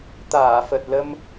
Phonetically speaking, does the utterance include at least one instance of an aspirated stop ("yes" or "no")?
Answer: no